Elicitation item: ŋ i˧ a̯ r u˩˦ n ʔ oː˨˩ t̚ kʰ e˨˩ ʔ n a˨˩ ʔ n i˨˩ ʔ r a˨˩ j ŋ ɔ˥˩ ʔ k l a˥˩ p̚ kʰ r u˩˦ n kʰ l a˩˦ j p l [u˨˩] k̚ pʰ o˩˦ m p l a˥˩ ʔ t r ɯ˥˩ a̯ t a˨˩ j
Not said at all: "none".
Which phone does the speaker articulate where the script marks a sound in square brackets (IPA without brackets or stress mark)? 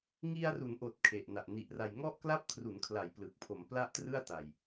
ɯ˨˩